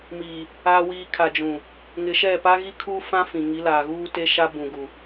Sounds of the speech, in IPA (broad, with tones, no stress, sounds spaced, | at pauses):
m iː˨ | a˨ w iː˨ kʰ a˨ d͡ʒ ũ˨ | ŋ ɪ˨ ʃ ɛ˦˨ p a˦ ɣ i˦ kʰ uː˦ f ã˦ f ĩ˨ ŋ i˨˦ l aː˨ ɣ uː˦ t e˦ ʃ a˦ b ũ˨ ɡ u˨